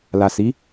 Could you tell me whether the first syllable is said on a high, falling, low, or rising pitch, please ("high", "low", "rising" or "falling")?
low